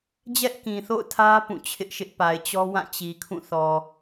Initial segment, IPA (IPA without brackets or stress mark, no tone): d͡ʑ